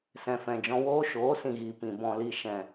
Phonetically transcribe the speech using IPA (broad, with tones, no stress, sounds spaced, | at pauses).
s ɛ̃˨ f ɛ̃˨ d͡ʒ ɔ̃˧ w oː˦ ʃ oː˨˦ s ĩ˨ ɣ i˨ p ĩ˨ b ɔ̃˨ l i˨ ʃ ɛ̃˨